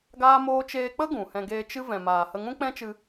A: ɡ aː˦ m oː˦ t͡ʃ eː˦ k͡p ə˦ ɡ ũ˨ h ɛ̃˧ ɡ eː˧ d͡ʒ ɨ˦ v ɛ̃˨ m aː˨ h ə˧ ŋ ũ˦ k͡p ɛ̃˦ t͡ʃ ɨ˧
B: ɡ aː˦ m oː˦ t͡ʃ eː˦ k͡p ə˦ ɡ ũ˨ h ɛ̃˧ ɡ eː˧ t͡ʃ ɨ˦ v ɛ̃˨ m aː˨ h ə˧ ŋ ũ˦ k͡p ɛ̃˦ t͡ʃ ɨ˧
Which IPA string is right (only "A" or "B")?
B